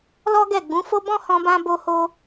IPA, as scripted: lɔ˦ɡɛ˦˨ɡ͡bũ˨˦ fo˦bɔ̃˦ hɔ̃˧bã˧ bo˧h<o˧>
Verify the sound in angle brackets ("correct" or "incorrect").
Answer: correct